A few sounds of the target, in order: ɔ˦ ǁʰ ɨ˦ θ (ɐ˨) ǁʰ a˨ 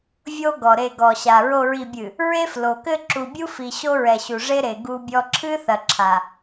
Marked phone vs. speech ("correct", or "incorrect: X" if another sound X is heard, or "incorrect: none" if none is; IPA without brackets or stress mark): correct